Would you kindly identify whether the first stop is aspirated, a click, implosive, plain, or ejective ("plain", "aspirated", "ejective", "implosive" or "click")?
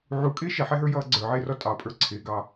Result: ejective